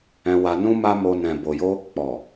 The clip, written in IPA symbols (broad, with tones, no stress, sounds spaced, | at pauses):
ɛ̃˧ w a˧ n ũ˦ m a˦ m o˧ n ɛ̃˨ b o˨ j o˧ | k͡p ɔ˨